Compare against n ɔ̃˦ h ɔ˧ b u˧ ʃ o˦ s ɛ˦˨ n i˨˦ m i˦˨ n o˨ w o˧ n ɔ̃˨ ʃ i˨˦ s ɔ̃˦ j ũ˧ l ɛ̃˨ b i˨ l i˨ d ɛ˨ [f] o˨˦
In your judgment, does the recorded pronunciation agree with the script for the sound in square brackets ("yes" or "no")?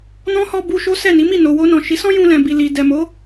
no